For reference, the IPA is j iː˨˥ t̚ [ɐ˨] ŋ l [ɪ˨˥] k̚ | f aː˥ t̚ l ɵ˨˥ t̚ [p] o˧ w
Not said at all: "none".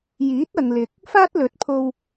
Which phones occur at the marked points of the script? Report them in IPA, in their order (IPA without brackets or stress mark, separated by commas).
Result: ɐ˨, ɪ˨, pʰ